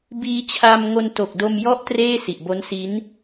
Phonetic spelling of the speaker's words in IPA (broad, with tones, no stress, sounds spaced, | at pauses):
b iː˧ t͡ɕʰ a˧ m ŋ o˧ n t o˨˩ k̚ d o˧ m j ɔ˦˥ ʔ t r eː˥˩ s i˨˩ ʔ b o˦˥ n s i˦˥ n